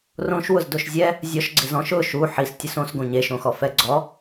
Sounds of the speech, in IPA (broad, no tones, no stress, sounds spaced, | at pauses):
r õ ʃ w ʊ z d o ʃ zʲ ɛ | zʲ ɔ ʃ ɡ͡ǀ ɪ z ɔ̃ ʃ ʊ ʃ u ħ i s tʲ ʊ s õ s ɡ õ ɲ e ʃ õ x ɔ f ɛ ɡ͡ǀ ɔ